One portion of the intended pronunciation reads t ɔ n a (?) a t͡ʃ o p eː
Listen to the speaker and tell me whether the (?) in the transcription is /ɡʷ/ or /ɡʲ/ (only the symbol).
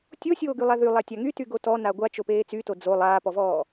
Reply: ɡʷ